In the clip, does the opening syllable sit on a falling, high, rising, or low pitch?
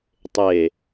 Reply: low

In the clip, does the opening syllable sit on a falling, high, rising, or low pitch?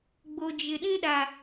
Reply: low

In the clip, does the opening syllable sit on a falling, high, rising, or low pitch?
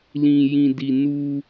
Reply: low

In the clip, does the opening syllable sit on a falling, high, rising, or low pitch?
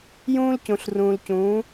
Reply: high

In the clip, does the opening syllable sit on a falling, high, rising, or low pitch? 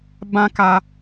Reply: high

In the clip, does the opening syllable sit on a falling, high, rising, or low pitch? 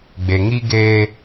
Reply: low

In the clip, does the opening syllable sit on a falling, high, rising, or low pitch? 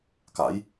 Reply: rising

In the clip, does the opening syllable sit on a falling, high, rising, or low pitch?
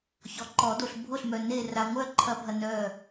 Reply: low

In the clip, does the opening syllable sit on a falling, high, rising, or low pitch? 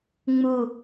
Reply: falling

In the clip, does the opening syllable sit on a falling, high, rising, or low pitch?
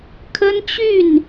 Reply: high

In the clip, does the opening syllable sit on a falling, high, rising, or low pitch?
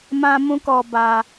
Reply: high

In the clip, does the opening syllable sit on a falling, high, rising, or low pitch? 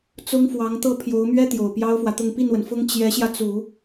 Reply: high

